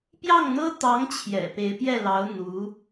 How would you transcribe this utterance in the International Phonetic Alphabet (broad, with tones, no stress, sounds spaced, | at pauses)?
p j ɑ˥˩ ŋ n̪ ɤ˥ t̪ ɑ˧˥ ŋ t͡ɕʰ j ɛ̰˨˩ p e˧˥ ɪ̯ p j ɛ˥˩ l ɑ˧˥ ʊ̯ n̪ u˧˥